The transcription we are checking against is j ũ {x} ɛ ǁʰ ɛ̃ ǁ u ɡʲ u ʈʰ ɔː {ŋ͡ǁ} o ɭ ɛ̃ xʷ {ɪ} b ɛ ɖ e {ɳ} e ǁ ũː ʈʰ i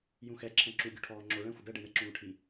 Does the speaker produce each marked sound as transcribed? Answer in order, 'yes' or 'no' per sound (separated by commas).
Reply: yes, yes, yes, yes